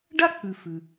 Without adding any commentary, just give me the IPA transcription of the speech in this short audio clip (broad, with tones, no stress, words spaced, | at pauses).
ɖa˥k͡pʉ˩ fʉ˩